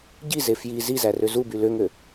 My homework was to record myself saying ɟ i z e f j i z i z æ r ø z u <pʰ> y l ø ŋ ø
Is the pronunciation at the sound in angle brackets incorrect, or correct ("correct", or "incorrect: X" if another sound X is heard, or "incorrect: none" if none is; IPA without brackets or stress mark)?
incorrect: b